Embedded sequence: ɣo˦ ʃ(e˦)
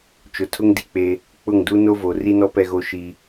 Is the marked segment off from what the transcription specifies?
yes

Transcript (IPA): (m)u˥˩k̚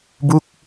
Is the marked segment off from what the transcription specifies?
yes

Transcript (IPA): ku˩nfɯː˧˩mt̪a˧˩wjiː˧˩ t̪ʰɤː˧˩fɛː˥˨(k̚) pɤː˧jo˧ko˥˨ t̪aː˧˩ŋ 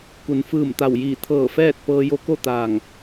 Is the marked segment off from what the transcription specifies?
yes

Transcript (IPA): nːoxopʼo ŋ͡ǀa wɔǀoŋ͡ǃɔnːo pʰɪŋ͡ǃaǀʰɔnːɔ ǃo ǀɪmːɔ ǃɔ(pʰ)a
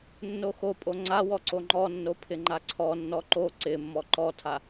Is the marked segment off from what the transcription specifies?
yes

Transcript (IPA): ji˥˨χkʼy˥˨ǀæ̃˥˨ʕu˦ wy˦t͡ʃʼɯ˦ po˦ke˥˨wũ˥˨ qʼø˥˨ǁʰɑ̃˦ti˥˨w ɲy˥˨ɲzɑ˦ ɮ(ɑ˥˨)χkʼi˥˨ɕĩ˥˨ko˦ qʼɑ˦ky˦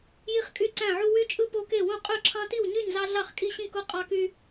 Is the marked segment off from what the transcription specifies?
no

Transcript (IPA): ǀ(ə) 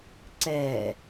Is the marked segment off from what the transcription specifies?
yes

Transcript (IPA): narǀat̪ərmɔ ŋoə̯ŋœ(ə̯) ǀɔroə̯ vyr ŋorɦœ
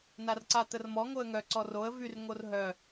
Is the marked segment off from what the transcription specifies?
yes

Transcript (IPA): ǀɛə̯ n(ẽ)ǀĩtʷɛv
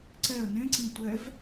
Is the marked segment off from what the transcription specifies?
no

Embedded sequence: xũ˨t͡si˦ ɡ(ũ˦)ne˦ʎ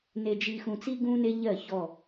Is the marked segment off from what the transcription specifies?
no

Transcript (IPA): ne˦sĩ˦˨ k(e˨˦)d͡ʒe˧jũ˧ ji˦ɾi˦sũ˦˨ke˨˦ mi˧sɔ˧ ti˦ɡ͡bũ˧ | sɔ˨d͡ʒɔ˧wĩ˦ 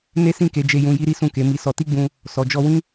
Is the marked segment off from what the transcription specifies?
no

